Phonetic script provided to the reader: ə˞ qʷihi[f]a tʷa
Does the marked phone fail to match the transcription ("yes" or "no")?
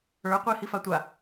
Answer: no